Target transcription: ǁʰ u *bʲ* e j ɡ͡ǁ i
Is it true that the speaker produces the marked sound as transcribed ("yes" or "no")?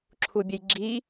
yes